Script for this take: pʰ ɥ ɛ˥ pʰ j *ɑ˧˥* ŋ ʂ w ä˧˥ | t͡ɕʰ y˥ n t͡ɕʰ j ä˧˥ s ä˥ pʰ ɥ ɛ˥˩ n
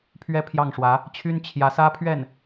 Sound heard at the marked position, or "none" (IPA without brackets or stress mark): ɑ˥˩